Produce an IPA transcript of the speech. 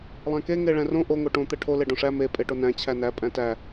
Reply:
lˠ æ̃ k e ŋ e ɭ æ̃ r õ ʔ o ŋ o ʈ õ t̪ ɛ ʈʰ o l e ɖ õ ʂ æ m e pʼ e ʈ o n æ̃ t͡ɕʰ æ n æ pʼ æ̃ t æ

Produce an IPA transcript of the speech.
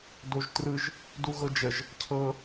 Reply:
d o ʒ t r ɯ ʒ | d u ɣ ɤ d͡ʒ ə ʒ | cʰ ɤ

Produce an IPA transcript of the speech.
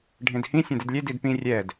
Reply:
ɖʱ ẽ d h ĩ sʲ õ d ɪ d lʲ e d i d p ĩ rʲ ɛ d

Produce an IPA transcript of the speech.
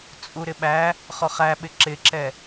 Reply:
t͡sʼ u ɾ ɪ ɓ æ | χ ɔ χ æ ɓ ɪ ǁ ɪ ǁ ɛ

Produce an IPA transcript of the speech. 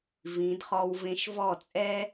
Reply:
v ĩ˩˧ d χ ɔ˧ w v ẽ˧ ʃ v ɔ˥˩ t͡sʼ ɛ˥

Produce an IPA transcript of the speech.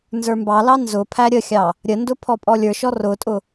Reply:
n z ə˞ m b ɑ l ɑ n z ʊ pʰ æ ɾʲ ə xʲ ɑ | ɾʲ ə n d ʊ pʰ ɔ pʼ ɔ lʲ ə˞ ʃ ɔ r ʊ tʼ ʊ

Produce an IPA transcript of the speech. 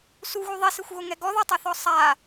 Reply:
s u ɣ u ðˤ i s e xʷ ɣ o ŋ ɛ ɡ ɔ ð o tˤ e θ ɔ sˤ a

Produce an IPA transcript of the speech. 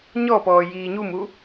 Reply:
ɲ ɔ p ɔː j iː ɲ u m u

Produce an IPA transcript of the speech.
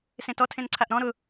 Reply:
s ẽ t ɔ tʰ ẽ n ǀʰ a ʔ ɾ ɔ̃ ɾ ʊ

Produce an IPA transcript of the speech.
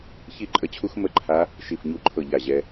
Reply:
ç i˥˧ ǃʼ ə˦˥ t͡ɕʰ u˦˥ x m ə˥˧ ǃʰ a˦˥ | ʃ i˥˧ f ɲ u˥˧ ǃʰ ɤ˥˧ ʎ a˥˧ ʑ ɛ˦˥

